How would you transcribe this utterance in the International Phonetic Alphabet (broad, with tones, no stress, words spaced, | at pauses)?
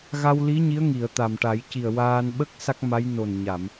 ɣa˧wli˧˥ ɲi˧˥ə̯ŋi˨˩˨ə̯ t̪a˨˩mʈa˨˩˦j ci˨˩ə̯ waː˧nɓə˦˥k̚ sa˦˥k̚ma˧˥j no˨˩nɲa˨˩˨m